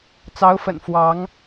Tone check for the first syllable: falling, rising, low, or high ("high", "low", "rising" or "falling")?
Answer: rising